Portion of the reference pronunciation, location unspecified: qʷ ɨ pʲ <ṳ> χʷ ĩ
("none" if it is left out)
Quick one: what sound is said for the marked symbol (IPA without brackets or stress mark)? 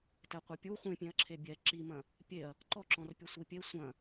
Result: u